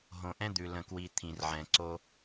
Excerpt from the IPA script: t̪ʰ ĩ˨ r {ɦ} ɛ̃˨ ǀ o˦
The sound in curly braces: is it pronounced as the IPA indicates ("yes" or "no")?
no